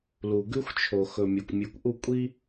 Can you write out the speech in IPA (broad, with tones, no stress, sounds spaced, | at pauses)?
l u˨ ɡ ʉ˦ xʷ t͡ʃʰ o˨ x ɵ˨ mʲ ɵ˨ kʷ mʲ ʉ˨ kʷ ʔ u˦˨ kʷʼ i˦